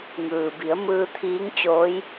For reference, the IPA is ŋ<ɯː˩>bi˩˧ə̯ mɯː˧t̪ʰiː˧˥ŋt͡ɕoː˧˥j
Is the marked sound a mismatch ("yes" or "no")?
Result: no